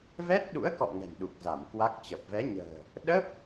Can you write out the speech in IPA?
v ɛ˦˥ t̚ ɗ ṵ˧˥ ə̯ k ɔ̰˧˨ ŋ ɛ̤˨˩ n ɗ u˨˩ k̚ z a˧˩ m k w a˦˥ k̚ t͡ɕ ə˨˩ p̚ v ɛ˨˦ ɲ ə̤ː˨˩ | ɗ ə˦˥ p̚

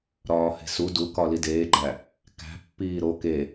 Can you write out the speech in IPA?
ɾ ɒː h e̤ s u d u k ɒ l i d eː ɡ͡ǃ æ | k æ̤ pː iː ɾ o k e

